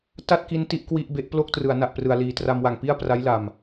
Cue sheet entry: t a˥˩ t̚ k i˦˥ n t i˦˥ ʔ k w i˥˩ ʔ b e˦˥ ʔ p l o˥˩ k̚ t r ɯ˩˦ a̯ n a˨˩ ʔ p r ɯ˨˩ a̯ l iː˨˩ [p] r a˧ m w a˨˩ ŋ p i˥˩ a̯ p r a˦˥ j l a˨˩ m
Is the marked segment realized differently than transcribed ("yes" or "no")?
yes